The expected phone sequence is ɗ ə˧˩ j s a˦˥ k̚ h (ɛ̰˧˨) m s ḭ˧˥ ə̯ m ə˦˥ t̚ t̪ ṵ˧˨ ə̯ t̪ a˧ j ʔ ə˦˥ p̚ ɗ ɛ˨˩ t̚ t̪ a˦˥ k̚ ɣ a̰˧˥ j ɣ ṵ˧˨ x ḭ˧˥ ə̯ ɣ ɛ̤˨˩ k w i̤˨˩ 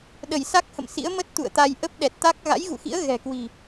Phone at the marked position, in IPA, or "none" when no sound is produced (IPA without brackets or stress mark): ə̰˧˨